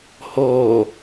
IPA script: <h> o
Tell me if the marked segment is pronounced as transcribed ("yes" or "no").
yes